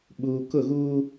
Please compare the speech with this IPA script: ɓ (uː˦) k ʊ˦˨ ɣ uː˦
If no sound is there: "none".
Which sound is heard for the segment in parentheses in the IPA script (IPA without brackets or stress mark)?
uː˨